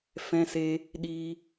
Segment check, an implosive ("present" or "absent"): present